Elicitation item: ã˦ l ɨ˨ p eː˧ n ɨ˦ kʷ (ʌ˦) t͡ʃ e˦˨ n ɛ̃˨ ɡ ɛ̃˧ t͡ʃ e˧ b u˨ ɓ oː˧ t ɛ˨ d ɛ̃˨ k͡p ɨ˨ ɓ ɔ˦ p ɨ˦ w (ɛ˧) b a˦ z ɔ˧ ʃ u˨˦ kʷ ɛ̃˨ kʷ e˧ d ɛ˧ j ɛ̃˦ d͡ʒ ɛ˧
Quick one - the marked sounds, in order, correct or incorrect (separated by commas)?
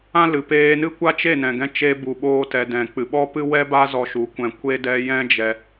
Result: incorrect, incorrect